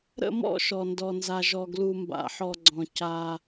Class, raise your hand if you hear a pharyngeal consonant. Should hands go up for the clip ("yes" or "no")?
yes